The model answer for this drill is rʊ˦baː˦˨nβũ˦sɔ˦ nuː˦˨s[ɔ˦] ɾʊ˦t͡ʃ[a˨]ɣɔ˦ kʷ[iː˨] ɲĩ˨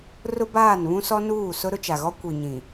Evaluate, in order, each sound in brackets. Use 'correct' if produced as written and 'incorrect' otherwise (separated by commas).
incorrect, correct, incorrect